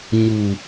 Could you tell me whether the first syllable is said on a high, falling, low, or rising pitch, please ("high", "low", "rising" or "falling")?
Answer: low